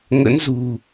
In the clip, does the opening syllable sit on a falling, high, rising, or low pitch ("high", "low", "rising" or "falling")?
rising